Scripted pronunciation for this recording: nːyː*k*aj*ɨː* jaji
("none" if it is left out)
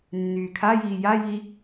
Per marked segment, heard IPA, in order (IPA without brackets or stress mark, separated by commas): kʰ, iː